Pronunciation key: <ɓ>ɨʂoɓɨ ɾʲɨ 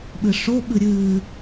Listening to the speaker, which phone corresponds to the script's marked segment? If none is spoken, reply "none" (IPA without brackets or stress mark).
ɓ